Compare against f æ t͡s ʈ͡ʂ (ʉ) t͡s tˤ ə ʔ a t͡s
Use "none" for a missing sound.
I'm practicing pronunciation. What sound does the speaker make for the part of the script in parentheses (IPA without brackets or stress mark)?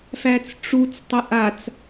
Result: u